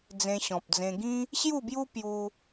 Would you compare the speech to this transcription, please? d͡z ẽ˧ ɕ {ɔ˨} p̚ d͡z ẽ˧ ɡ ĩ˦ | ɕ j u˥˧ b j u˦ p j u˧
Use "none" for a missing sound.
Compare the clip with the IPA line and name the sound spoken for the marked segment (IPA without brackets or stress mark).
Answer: ɔ̃˨